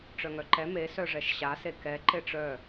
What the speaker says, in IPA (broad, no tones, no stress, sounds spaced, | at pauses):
ʈ͡ʂ œ ŋ œ ǃ ɛ m e s œ ʐ ɛ ʃ ɕ a s e k ɛ ǃ e ʈ͡ʂ œ